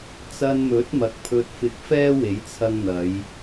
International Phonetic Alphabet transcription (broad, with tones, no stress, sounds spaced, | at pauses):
t͡s ɐ˧ n m ɵ˨˥ t̚ m ɐ˨ k̚ pʰ ɵ˧ t̚ f ɪ˧ k̚ f ɛː˥ w e˨˥ j t͡sʰ ɐ˧ ŋ n̪ ɐ˨˧ j